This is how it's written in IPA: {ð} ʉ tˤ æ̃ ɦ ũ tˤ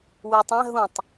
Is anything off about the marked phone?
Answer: yes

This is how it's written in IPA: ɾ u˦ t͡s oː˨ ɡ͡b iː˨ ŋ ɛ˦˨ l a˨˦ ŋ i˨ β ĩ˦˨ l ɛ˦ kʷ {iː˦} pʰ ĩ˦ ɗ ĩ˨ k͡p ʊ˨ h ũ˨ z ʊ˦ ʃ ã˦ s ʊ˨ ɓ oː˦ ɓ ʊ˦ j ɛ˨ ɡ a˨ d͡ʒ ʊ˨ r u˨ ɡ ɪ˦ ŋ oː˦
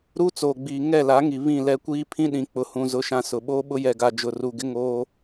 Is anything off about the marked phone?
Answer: no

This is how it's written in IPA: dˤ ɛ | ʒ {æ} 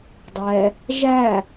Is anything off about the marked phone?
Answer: no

